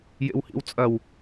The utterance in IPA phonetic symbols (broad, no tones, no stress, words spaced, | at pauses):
jḛwhḭwt͡sʼɐw